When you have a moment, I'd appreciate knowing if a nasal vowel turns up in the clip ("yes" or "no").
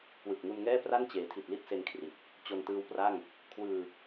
no